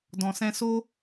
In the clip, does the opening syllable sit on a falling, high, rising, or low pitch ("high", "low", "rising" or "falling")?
low